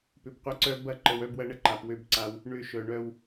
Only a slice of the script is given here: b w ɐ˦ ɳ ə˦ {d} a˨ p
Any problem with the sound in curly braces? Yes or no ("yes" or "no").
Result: yes